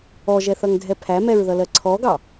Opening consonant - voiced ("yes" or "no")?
yes